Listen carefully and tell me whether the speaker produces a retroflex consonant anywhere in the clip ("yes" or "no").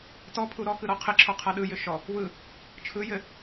no